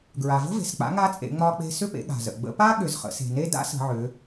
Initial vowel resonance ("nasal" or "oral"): oral